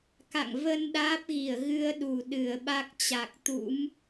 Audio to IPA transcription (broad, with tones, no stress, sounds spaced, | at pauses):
k a̰˧˨ ŋ v ə˧ n ɗ aː˦˥ p̚ ɣ i˧˩ ə̯ ɣ ɨ˧ ə̯ ɗ u˨˩ ɗ ɨ˨˩ ə̯ ɓ a˦˥ k̚ t͡ɕ a˨˩ k̚ t̪ ṵ˧˥ m